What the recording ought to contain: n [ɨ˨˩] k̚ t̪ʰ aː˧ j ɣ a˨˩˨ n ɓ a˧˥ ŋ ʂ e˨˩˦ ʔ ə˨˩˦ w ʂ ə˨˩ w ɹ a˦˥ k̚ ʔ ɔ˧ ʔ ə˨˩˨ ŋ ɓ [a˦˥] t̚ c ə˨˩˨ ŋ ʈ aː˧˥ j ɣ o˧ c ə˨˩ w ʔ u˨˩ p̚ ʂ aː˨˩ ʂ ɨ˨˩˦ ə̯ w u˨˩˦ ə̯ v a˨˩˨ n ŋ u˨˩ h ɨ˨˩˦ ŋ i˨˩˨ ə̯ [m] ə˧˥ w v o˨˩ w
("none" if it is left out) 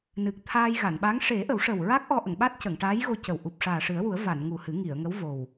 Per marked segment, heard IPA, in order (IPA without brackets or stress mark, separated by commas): ɨ˨˩, a˦˥, ŋ